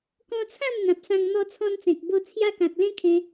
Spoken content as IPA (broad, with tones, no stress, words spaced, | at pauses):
kɔ̃˧t͡sʰã˥˧m n̪ã˨p̚sã˧ŋ n̪ɔ˧t͡sʰɔ̃˧nt͡sẽ˨k̚ bo˧ t͡sʰja˧kã˨t̚ lẽ˦kʰẽ˧